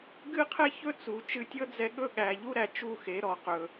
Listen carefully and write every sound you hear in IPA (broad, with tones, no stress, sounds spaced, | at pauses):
ɡ ɨ˦ qʰ ɛ˦ ç ɵ˦ t͡s u˨ t͡ʃ ɨ˧ tʲ ɤ˦ d͡z ɛ˧ ɠ ɵ˦˨ ɠ æ˨ ʎ u˦ ɾ æ˨ t͡ʃ u˦˨ x e˨˦ ɾ ɔ˨ q ɵ˨